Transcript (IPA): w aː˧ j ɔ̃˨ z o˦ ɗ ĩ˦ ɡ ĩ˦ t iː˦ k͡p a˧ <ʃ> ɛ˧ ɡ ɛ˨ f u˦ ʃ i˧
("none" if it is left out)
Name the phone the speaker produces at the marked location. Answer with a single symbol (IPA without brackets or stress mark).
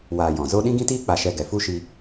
ʃ